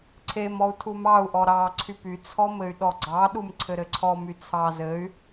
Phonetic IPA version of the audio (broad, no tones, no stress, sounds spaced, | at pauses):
ǀʰ e m ɔ u̯ tʰ u m ɑ u̯ ʔ ɔ ɾ ɑ ǀʰ y p y t͡sʰ ɔ m ɘ y̯ ɗ ɔ ɡ͡ǀ ɑ ɗ u m ǀʰ ɘ ɾ ɘ ǀʰ ɔ m y t͡sʰ ɑ z ɘ y̯